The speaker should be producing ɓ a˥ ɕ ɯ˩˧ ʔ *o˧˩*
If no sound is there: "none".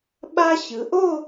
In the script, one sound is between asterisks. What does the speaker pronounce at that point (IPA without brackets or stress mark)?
o˥˧